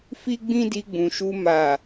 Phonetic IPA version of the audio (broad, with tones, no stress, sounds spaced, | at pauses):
f i˦ ɡ͡b ĩ˦ d i˧ ɡ͡b ũ˨ ʃ u˧ m a˨